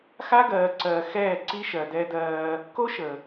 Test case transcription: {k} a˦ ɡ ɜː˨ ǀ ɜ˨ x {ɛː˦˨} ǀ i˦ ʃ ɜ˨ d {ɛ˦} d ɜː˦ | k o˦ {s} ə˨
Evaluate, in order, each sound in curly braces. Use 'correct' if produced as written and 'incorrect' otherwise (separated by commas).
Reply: incorrect, correct, correct, incorrect